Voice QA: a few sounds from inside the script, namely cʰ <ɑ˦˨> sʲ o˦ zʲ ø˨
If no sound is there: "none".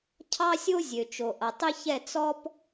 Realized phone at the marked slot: ɑ˦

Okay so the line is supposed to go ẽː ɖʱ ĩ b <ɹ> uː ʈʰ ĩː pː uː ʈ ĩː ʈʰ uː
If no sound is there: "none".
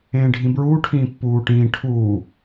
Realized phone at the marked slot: ɹ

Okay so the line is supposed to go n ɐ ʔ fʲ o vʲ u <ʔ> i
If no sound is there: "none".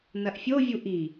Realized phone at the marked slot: ʔ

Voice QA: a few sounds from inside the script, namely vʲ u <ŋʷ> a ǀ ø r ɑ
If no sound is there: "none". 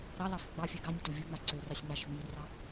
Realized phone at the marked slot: ŋ͡m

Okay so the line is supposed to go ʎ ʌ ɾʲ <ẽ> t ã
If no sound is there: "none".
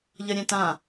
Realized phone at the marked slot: ɛ̃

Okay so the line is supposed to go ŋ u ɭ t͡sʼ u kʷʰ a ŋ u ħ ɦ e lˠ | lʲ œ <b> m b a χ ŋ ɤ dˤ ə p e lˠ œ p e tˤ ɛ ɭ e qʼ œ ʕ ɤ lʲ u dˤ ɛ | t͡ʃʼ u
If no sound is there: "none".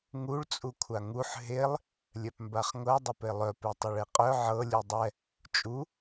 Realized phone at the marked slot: p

